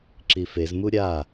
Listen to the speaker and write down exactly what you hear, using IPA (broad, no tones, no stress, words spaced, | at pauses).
ǁifez muɾʲa